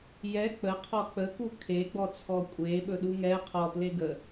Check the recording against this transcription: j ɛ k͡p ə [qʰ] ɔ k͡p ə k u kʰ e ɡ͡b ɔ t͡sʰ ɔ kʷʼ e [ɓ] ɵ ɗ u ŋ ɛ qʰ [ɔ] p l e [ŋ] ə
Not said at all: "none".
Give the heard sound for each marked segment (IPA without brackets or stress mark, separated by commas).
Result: qʰ, ɓ, ɔ, ɡ